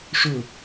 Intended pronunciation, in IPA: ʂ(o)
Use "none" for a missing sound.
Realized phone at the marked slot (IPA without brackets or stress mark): ɵ